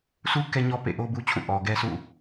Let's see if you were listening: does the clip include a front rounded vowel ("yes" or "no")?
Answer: no